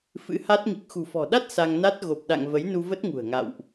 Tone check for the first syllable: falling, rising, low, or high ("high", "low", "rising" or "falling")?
rising